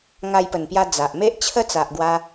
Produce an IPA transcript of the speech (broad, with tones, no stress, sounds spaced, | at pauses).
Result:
ŋ a˧ j p ə˨˩ n p j a˧ d͡z a˨ ʔ m e˦ ʔ t͡ɕʰ ə˦ t͡s a˨ ʔ ɡ w a˧